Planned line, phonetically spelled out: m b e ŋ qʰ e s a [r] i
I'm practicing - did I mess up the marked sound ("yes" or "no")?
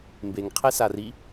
no